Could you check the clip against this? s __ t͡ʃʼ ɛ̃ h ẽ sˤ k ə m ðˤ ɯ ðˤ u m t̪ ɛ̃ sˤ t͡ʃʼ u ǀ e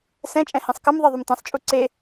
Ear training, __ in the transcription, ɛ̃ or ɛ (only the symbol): ɛ̃